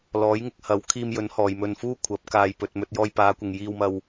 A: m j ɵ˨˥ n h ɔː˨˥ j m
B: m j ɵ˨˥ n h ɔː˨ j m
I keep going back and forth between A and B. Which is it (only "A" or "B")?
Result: B